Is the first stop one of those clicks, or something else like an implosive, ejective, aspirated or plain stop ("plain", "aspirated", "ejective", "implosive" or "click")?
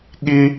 implosive